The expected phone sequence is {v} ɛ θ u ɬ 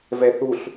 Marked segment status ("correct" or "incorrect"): correct